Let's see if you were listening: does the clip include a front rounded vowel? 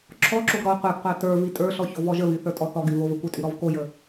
yes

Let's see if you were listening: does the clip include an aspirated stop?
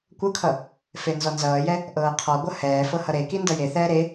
yes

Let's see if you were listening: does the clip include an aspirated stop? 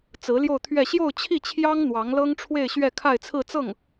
yes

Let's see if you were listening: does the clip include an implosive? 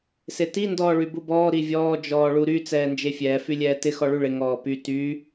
no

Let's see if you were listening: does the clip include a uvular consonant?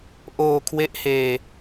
no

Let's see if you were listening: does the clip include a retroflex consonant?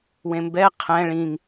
yes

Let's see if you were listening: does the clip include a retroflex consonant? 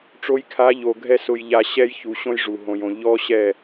yes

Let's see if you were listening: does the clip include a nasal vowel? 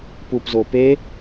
no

